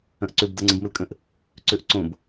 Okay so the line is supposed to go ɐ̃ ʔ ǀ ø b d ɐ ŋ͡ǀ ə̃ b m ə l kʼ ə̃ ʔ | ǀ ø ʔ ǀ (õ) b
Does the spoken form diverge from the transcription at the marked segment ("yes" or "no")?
no